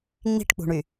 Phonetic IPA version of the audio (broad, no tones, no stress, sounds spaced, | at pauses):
ŋ͡m i̤ ʈ k͡p ṳ ɳ y